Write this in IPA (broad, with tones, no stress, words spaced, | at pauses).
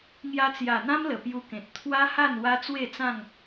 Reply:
ŋja˧t͡sja˨˩n̪ã˦m lə˨˩pju˧kẽ˨t̚ t̪ʰwa˦ha˥˧n wa˦ t͡swe˥˧t͡sã˥˧ŋ